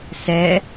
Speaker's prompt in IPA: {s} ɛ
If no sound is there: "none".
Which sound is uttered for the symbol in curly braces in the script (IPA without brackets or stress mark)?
s